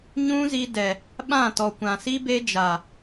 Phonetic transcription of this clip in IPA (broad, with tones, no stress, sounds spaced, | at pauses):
ɲ ũ˦ z i˧ d ɛ˨ | ɓ ã˦˨ t ɔ˨ kʷ ã˨ s i˦ b e˦ d͡ʒ a˨